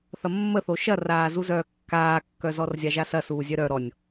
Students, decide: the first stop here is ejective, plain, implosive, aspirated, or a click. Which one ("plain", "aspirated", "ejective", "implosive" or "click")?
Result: plain